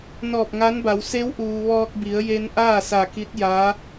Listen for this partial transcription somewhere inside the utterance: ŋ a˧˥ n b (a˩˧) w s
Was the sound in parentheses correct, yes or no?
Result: yes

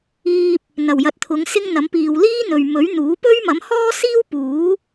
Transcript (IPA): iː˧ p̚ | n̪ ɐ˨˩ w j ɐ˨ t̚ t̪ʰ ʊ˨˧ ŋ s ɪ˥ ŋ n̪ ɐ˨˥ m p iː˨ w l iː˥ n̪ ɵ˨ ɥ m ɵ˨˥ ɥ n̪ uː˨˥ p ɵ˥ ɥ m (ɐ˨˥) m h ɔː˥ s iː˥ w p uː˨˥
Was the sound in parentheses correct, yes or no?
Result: yes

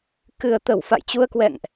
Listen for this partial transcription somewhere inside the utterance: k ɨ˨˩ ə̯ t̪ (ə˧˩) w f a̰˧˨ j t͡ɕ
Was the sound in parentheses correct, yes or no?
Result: yes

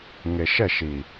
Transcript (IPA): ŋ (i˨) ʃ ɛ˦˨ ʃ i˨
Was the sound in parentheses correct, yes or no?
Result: no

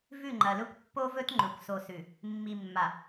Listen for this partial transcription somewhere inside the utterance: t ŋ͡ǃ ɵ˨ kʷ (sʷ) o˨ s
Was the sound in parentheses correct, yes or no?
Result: no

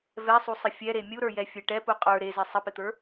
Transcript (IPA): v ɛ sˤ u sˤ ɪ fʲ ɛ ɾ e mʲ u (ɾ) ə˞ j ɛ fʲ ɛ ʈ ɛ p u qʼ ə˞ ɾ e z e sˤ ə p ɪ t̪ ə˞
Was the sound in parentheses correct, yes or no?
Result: yes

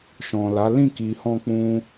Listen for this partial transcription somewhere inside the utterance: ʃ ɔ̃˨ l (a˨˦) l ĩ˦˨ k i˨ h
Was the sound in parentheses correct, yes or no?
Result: yes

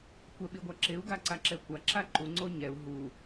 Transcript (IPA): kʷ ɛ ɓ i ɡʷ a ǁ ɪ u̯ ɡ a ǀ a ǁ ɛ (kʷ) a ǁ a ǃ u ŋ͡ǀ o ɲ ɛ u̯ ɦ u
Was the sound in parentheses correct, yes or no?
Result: yes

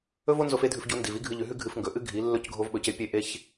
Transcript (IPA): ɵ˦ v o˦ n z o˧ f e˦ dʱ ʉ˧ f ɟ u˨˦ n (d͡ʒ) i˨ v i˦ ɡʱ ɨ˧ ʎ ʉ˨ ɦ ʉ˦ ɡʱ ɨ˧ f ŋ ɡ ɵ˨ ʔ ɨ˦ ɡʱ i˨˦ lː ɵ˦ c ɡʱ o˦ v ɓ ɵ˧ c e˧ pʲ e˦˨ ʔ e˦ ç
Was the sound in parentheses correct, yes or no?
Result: no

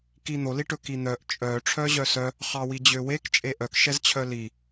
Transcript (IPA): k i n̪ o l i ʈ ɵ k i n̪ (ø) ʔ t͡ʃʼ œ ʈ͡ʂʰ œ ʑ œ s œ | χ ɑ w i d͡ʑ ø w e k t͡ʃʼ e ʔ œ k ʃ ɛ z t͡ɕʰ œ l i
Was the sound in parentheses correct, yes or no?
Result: no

